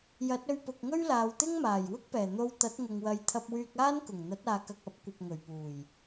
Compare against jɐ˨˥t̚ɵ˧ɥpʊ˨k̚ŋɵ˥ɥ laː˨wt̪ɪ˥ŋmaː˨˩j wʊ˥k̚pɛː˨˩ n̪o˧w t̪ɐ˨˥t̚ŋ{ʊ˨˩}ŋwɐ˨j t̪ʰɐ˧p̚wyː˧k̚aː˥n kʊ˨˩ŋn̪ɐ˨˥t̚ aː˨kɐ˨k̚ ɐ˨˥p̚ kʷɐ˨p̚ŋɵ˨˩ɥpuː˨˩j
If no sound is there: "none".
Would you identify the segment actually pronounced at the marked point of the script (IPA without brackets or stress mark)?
ʊ˨